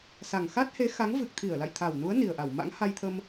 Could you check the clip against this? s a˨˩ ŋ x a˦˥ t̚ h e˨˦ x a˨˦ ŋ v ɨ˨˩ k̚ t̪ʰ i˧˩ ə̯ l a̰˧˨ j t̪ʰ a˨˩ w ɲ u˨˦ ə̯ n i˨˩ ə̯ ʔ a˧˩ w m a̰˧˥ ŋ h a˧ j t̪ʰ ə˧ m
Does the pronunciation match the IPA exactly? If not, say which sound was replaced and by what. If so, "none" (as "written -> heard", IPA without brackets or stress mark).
ɲ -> n